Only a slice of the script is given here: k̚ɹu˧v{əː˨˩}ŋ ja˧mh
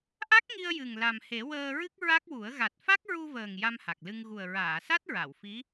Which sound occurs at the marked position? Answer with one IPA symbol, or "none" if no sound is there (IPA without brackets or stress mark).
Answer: əː˨˩